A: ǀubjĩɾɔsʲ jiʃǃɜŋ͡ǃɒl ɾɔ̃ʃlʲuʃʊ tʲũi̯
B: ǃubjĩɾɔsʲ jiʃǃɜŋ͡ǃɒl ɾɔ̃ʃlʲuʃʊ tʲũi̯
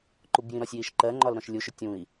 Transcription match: B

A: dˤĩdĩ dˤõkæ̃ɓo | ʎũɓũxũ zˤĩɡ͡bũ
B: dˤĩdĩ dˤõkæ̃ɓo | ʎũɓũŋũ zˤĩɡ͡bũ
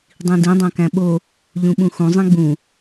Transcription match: A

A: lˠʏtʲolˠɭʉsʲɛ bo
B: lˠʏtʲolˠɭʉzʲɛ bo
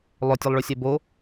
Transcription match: A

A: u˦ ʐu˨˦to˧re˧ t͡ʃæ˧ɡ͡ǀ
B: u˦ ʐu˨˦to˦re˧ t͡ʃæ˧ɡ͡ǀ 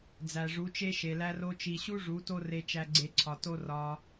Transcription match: B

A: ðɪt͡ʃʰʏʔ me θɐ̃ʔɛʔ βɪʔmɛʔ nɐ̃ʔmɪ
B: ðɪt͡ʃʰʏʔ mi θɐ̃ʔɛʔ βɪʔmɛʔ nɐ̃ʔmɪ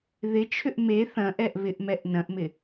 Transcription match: A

